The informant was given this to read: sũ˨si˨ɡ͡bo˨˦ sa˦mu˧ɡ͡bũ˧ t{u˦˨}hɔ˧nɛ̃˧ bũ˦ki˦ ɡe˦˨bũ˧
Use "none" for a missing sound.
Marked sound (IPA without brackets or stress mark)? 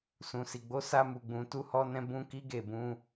u˧